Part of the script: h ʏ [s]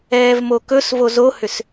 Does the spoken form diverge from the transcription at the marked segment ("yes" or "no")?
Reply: no